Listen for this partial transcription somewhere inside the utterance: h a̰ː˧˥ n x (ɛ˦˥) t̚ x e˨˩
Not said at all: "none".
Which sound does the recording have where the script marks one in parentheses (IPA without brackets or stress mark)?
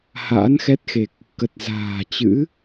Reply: ɛ˦˥